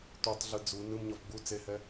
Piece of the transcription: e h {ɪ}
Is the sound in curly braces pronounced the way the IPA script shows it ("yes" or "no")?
no